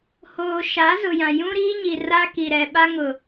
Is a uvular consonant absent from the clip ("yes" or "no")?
yes